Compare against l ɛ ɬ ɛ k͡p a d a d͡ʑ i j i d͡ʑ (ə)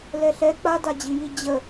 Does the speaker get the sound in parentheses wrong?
no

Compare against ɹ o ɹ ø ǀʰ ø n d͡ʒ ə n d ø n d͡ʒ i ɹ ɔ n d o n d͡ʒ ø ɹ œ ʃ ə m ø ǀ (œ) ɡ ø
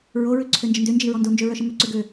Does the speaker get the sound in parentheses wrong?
yes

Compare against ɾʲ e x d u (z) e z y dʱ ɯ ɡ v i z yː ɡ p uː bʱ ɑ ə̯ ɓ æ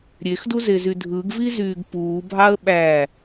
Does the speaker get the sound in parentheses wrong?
no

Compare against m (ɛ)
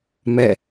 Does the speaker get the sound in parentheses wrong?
no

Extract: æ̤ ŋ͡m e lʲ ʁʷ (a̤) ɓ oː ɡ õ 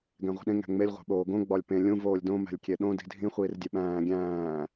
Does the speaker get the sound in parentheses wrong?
yes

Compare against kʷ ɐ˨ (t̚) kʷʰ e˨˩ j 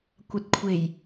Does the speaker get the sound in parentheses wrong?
no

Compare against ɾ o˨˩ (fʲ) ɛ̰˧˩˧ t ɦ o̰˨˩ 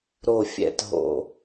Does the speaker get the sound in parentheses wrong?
no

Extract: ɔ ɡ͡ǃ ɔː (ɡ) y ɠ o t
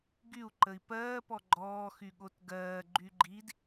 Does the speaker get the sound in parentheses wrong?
yes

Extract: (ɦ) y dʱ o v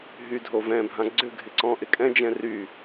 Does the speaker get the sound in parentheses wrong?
no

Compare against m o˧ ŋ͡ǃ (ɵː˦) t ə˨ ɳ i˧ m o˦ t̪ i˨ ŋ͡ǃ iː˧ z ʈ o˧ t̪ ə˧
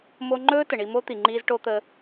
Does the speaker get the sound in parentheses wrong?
no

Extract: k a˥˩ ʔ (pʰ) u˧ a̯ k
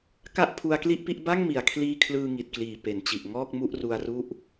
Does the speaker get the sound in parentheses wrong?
no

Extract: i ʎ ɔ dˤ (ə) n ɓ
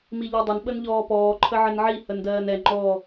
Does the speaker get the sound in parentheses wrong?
no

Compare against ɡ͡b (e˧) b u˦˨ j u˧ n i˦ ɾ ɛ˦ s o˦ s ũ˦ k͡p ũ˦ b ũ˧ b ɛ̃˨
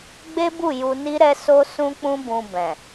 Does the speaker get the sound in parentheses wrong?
yes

